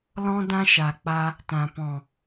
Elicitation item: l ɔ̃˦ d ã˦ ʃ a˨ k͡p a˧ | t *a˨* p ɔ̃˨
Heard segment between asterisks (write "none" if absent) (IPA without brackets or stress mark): ã˨